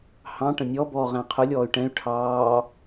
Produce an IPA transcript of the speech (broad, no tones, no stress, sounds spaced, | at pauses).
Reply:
h ɑ̃ ʈ ə̃ nʲ ɔ b ɔː ʁ æ̃ qʰ ʊ lʲ ɔː y̯ ʈ ɛ̃ y̯ ʈʰ ɑː